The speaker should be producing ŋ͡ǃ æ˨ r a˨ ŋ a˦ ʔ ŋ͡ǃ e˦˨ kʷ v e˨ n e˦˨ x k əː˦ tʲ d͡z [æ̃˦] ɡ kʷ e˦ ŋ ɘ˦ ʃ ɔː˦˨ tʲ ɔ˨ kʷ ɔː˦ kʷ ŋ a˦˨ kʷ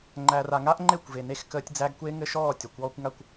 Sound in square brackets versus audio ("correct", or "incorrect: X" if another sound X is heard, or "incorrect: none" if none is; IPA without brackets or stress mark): incorrect: æ˦